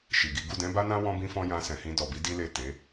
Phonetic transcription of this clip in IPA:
ʃi˨ɡi˨˦ ɡu˦˨dɛ̃˨˦ba˦nã˦ wɔ̃˦bĩ˦fɔ̃˦jã˧ sɛ̃˨hĩ˧dɔ˨bi˨˦ di˦le˦˨ te˨˦

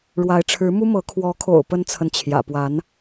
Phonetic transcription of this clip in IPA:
ɻwa˧˥ɪ̯ʈ͡ʂʰɻ̩˧˥ mu˥mɤ˧˥ kʰwɔ˧˥kʰo̰˨˩ʊ̯ pə˥nt͡sʰə˨nt͡ɕʰjä̰˨˩ pwa˧˥n

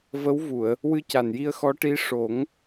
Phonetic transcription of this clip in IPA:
və˧˥wvu˨˩˨ə̯ | wɨ˧ca˨˩nji˧ə̯ xɔ˧˥ʈi˧˥ ʂo˨˩˦ŋ

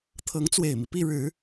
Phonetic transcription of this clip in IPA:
t̪ʰɤ˧˥ŋt͡swe˨˩ɪ̯mi˦ pi˥˩ɻɻ̩˨˩˦

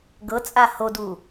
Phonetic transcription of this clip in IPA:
ɡɤt͡sʼa hodu

